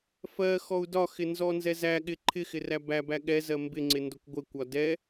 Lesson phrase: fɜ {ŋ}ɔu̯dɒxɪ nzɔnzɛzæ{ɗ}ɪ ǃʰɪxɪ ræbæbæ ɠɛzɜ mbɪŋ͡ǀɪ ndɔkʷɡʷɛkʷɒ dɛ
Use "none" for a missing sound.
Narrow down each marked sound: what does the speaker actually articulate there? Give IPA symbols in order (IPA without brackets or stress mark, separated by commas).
x, ɠ